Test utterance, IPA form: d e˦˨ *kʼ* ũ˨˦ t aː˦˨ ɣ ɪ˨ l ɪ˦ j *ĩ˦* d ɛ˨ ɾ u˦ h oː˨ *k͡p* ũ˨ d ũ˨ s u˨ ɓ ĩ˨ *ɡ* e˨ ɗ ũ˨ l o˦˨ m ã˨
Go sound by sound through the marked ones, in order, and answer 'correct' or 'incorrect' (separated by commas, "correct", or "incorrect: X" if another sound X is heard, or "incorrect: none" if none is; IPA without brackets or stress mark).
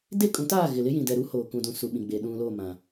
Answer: correct, incorrect: ĩ˨, incorrect: k, incorrect: ɡ͡b